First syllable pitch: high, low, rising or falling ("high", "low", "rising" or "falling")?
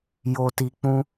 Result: low